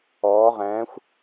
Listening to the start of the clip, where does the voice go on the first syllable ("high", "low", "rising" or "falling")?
rising